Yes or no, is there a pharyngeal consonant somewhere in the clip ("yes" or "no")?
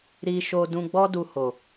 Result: no